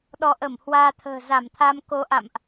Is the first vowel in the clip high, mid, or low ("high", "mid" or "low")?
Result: mid